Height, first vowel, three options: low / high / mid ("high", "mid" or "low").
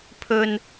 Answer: mid